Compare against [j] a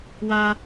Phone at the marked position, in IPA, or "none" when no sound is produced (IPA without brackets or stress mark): w